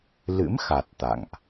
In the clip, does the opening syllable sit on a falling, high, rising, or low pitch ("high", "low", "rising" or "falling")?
rising